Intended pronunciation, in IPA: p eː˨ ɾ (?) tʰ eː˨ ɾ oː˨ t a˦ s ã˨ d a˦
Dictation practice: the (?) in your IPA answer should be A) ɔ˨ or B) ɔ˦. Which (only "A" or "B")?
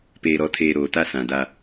A